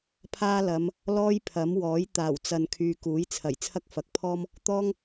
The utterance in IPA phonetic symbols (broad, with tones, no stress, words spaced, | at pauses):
pʰaː˥ lɐ˨˧m | lɔː˥jpʰɐ˨˥mwɔː˨˥j t̪aː˨˩wt͡sɐ˨nkʰyː˨ kuː˨˥jt͡sʰɐ˨˩j t͡sʰɐ˥k̚fɐ˨k̚pʰɔː˥m | t̪ɔː˥ŋ